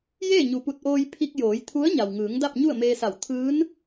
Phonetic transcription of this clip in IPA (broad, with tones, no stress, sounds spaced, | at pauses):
j eː˥˨ ɲ u˩ p u˧˩ t̚ ʔ oː˧ j pʰ i˧ k̚ j oː˩˧ j t̪ʰ u˧˥ ə̯ ɲ a˩ w ŋ ɯː˩˧ ŋ d a˥˨ p̚ ɲ u˥˨ ə̯ m eː˧ s a˧˩ w t̪ʰ ɯː˧˥ n